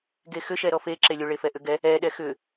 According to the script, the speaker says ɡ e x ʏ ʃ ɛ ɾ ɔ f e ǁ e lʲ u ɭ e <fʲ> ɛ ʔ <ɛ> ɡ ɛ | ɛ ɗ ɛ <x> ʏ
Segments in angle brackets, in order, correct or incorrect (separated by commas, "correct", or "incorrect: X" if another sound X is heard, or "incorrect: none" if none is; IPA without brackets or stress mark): incorrect: f, incorrect: ʏ, correct